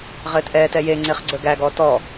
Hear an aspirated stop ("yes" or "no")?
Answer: no